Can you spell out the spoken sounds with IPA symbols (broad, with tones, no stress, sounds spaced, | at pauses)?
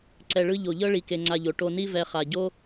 ǀ ɛ˧ ɭ ɯ˦ ʎ o˨ ʎ ɤ˦ ɭ i˧ k e˧ ŋ͡ǀ a˧ ʎ o˨ ʈ o˧ n i˦ v ɛ˧ χ a˨ ɟ o˦